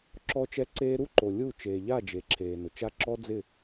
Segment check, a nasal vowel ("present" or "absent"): absent